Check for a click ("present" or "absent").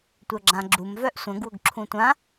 present